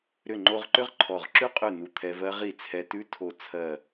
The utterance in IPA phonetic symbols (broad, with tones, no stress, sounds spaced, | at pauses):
ɾ ʏ˧˩ ŋ͡ǃ o˧ ʁ ǃ ʏ˦˥ ʁ ǃʰ ɔ˧˩ ʁ ǁ ʉ˦˥ qʼ ʉ˧˩ n u˧˩ t̪ʰ ɛ˧ v ɜ˦˥ ʁ i˧˩ t͡sʰ ɛ˧ t ʉ˦˥ tʰ o˧˩ t͡sʰ ɜ˧˩